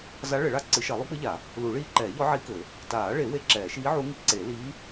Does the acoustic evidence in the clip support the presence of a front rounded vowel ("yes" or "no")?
no